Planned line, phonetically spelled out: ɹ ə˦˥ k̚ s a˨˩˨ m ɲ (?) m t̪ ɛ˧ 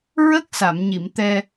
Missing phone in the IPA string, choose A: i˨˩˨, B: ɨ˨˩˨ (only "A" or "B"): A